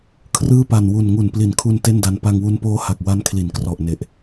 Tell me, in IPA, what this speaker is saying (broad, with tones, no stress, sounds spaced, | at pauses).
kʰ r ɯː˥˩ p a˨˩ n w u˨˩ n ŋ u˨˩ n p l i˨˩ n kʰ u˧ n t e˥˩ n d a˧ n p a˧ ŋ w u˧ n p oː˦˥ h a˨˩ k̚ w a˦˥ n kʰ l i˩˦ n k r ɔ˨˩ ʔ n e˨˩ ʔ